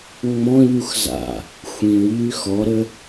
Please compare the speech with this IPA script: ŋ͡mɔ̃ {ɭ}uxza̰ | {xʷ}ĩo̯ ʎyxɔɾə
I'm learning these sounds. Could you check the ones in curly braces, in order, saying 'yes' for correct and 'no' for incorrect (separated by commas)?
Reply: no, yes